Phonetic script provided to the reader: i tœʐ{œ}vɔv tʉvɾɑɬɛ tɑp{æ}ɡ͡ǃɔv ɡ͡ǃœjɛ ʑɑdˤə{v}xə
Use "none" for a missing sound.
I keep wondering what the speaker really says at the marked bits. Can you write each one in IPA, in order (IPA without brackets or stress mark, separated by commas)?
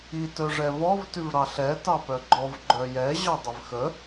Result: ɛ, œ, v